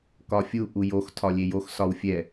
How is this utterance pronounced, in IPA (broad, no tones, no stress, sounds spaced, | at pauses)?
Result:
k ɒ fʲ u ʔ u j o x tʰ ɒ lʲ e j o x s ɒ w fʲ ɛ